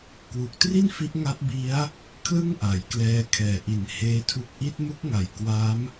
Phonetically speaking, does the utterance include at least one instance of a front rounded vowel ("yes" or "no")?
no